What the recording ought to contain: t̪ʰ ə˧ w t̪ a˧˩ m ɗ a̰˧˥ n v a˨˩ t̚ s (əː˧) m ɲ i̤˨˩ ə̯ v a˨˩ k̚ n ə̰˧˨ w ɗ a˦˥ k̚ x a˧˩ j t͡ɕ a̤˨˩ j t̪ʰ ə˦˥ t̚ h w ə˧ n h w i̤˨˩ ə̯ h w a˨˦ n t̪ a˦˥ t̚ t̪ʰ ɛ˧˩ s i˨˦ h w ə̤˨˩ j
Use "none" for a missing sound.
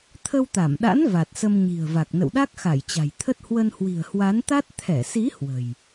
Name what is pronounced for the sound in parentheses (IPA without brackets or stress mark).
ə˧